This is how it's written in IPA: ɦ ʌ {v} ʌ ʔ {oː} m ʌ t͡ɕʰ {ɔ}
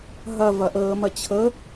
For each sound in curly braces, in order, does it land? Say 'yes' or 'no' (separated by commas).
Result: yes, no, no